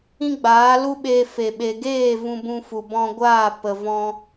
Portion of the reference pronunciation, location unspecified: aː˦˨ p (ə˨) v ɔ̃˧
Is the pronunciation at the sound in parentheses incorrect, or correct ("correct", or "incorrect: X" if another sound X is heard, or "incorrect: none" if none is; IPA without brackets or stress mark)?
correct